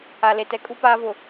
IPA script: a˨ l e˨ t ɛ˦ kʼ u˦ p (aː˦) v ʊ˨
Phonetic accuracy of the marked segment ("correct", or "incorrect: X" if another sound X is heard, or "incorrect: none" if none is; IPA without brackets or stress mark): correct